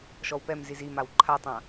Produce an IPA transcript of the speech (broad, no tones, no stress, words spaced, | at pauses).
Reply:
ʃɔwpɛmziz imaw ǃʰatˤã